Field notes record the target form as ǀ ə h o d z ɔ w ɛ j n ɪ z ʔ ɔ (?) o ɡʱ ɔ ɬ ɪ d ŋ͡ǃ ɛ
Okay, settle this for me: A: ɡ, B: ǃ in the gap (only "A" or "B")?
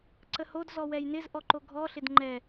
B